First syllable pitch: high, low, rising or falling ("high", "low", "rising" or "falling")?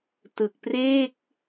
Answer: low